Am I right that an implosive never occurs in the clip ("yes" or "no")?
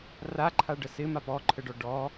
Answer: yes